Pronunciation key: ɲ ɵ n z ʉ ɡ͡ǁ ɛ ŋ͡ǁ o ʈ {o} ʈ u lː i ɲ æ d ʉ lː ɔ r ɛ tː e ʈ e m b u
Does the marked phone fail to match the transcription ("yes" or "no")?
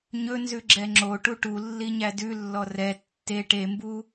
yes